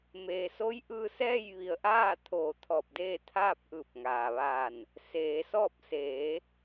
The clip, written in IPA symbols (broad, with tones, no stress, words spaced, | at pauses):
meː˩so˧˥j ʔɯː˧ sɛː˥˨jʋi˧˩ə̯ʔaː˥˨t̪ʰoː˧˩ t̪ʰɔː˧˩p̚deː˥˨t̪ʰaː˥˨p̚ ʔɯː˧˩p̚ŋaː˩ʋaː˧˩n | seː˩˧sɔː˥˨p̚ seː˩˧